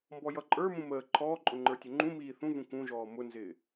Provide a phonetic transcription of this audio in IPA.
m b ɔ j ʌ ǃʼ ə˞ m ũ m əː ǃʰ ɔː ǃʼ ʊ ŋ͡ǃ ə˞ tʲ ʊ ŋ͡ǃ ũ m iː θ ũ v ũ k ũ ʒ ɔː m ʊ n z ɪː

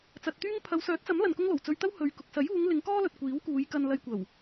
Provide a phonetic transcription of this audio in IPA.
t͡s ɐ˨ t̚ t̪ yː˥ ŋ pʰ ɐ˨˧ w s œː˨˥ t̚ t͡s ɐ˨˥ m l ɐ˨ n k ʊ˥ ŋ l o˨˩ w t͡s ɵ˧ ɥ t̪ ɐ˥ w h ɵ˨ ɥ k ʊ˨ k̚ s ɐ˨˥ j uː˨˧ ŋ l ɪ˨˧ ŋ k ɔː˥ l ɵ˨ t̚ kʷ iː˨˥ w k uː˨˧ j k ɐ˧ n l ɐ˧ j kʷ ɐ˨˩ w

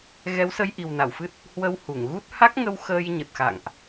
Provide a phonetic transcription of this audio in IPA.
ɣ ɛ˨˦ w s ə˧ j ʔ i˨˩ w n a˧˩ w f ɨ˦˥ t̚ | h w ə˧ w h u˧˩ ŋ ɣ u˦˥ t̚ h a˦˥ k̚ ŋ ə˧ w x əː˧ j ɲ ə˨˩ t̚ x a̰˧˨ ŋ ʔ

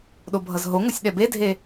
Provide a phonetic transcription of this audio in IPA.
ɗ o bʱ ʌ z ɦ o ŋ o sʲ ɗ ɛ b e dʱ e

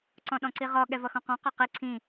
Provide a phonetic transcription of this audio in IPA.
ǀ ɔ̃ ɗ ɔ̃ ǀ i ʁ ɔ ɠ ɛ v ʌ x ɔ̃ q ɔ̃ q ɒ q i ǀʰ ĩ

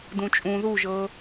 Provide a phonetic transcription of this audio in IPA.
d ũ t͡ʃʼ ũ ð u ʒ ɤ

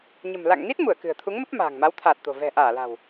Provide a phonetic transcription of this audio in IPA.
ɲ ə̤˨˩ m l a̰˧˨ ŋ n i˦˥ t̚ m u˧˩ ə̯ k ɨ̤˨˩ ə̯ t̪ʰ u˨˦ ŋ m ə˦˥ p̚ m a̤ː˨˩ ŋ m a˨˦ w t̪ʰ aː˨˩ t̚ t̪ o̤˨˩ v ɛ̤˨˩ ʔ aː˧˩ l a̤˨˩ w

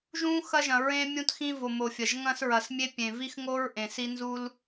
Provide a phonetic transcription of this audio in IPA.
ʒ ũ˦ x ɐ˦ ʒ ɐ̃˨ ɹ ẽ˦ mʲ ũ˦ t x ĩ˦ v o˨ m o˨ fʲ ɐ˨ ʒ ŋ ɐ̃˦ s ɹ ɐ˨ s mʲ e˦ pʲ ẽ˨ v i˦ x ŋ o˦ ɹ ʔ ẽ˨ s i˦ n z u˦ l

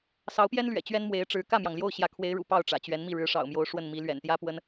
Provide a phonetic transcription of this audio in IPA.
s ɑ˧˥ ʊ̯ p j ɛ˥ n l ɥ ɛ̰˨˩ t͡ɕ ɥ ɛ˥ n m w e˧˥ ɪ̯ ʈ͡ʂ ɻ̩˧˥ k ä˥˩ m j ɑ˩ ŋ l j o˥˩ ʊ̯ ɕ j ä˧˥ kʰ w e˧˥ ɪ̯ ɻ ṵ˨˩ p ɑ˥˩ ʊ̯ ʈ͡ʂ ä̰˨˩ t͡ɕ ɥ ɛ˧˥ n m i˥˩ ɻ ɻ̩˧˥ ʂ ɑ̰˨˩ ʊ̯ m j o˧˥ ʊ̯ ʂ w ə˥˩ n m i˧˥ l ɥ ɛ̰˨˩ n t̪ j ä˥ p w ə˥ n

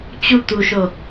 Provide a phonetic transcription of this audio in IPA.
t͡ɕ u t̪ u ʃ o

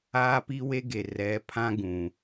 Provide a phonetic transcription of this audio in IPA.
aː˦ p i˦ w e˦ ɡ e˨ r ɛ˨˦ pʰ ã˦ ɡ ũ˨

